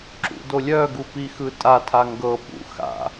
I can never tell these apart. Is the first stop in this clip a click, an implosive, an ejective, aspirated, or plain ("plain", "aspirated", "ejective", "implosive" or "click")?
click